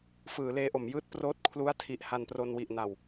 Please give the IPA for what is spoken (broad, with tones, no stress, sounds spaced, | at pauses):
f ɯː˩˦ l eː˧ ʔ o˩˦ m j ɯː˥˩ t̚ p r oː˦˥ t̚ kʰ l u˦˥ a̯ tʰ i˨˩ ʔ h a˧ n p r o˧ n w i˨˩ ʔ n a˨˩ w